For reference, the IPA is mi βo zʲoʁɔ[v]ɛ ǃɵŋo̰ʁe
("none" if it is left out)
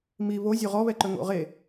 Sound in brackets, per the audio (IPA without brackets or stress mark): β